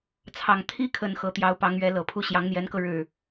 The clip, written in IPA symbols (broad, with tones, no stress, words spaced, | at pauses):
t͡sʰɑ˨˩ŋ t̪ʰi˥kʰə˨˩n xɤ˧˥t̪jɑ˧˥ʊ̯pɑ˧˥ŋɥɛ˧˥ lɤ˨˩pʰu˥˩ ɕjɑ˧˥ŋn̪jɛ˧˥nkɤ˧ ɻɻ̩˥˩